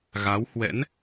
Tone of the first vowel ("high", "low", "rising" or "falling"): rising